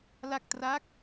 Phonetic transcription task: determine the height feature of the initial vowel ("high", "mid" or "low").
low